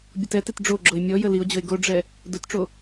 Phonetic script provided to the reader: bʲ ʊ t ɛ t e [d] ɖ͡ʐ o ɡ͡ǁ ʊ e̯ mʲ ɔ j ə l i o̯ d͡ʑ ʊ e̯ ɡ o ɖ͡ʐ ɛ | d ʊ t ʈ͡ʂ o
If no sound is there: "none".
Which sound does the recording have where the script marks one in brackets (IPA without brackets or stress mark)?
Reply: t